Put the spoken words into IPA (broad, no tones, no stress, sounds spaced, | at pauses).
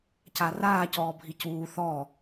c a r aː c ɔː bʱ i c uː θ ɔ